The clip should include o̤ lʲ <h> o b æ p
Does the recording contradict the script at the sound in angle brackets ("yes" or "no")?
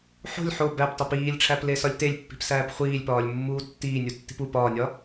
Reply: yes